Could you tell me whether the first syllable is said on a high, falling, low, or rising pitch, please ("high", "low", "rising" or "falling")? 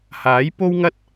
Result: rising